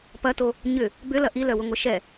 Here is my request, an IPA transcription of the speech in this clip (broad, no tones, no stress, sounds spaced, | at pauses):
p ɐ t o | ɲ ʏ | b ʏ l ɐ ʔ i l œ w ʊ ŋʷ ɐ ʃ ɛ